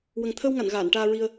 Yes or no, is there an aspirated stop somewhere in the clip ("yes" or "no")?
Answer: yes